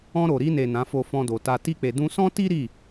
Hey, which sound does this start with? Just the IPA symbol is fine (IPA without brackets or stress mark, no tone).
ɔ̃